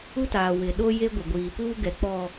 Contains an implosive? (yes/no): yes